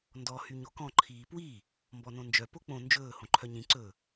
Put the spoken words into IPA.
ndɔ hyɲokɔ̃ ǃʰiːpwi | mbɔnõnd͡ʒœ pok͡põ nd͡ʒɵː hõǃʰœɲĩ ǀɵ

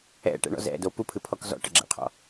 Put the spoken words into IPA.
ɛ̰ʈɛ̰ɳɔ̰z ɛ̰do pupʰɨpʰɔk zɔ̰ʈɘɡ͡ǁɛ̰qʰɔ̰

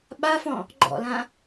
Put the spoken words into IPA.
ɓafɔ̃ | ɡ͡ǃɔ̰lã

